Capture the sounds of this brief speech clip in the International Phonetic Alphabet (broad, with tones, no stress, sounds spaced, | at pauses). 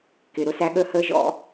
k ɪ˩ ɾ ʊ˩˧ s æ˩˧ ɠ əː˧ h əː˧ ʒ ɔ̰˧